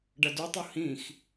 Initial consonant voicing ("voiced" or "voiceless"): voiced